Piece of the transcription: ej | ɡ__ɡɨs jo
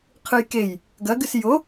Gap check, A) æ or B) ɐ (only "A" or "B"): B